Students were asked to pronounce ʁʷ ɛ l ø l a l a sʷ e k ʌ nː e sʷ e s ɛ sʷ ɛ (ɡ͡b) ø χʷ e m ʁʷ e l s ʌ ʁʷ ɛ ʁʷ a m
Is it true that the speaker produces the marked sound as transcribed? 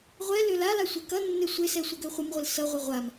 no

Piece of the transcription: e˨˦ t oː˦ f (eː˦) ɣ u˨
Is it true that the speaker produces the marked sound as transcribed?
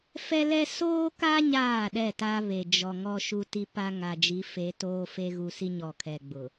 no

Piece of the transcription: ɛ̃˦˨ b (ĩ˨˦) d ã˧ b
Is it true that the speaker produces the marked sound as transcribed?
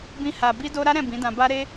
yes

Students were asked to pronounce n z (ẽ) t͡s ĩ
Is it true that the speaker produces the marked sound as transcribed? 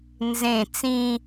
yes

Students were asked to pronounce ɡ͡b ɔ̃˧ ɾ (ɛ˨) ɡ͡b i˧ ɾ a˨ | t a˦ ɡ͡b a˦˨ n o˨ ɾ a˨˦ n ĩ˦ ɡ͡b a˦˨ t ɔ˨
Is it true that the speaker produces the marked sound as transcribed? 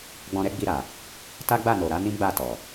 no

